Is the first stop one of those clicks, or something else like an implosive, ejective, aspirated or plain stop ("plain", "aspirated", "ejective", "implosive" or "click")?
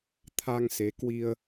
aspirated